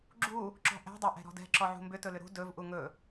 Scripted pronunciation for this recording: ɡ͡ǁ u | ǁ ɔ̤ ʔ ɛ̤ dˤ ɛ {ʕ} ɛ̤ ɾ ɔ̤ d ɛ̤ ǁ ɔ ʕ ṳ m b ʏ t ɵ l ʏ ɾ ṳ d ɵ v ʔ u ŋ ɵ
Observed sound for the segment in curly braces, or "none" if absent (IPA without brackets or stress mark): ʔ